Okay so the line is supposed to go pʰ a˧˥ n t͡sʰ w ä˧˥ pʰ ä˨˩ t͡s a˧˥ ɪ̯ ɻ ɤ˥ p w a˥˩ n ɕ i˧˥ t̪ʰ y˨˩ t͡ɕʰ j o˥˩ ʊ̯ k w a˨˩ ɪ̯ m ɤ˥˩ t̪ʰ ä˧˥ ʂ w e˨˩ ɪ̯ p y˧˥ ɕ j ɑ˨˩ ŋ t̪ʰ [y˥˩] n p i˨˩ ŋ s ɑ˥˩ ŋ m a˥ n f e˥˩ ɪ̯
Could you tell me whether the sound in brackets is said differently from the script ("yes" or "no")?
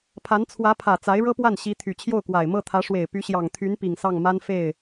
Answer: yes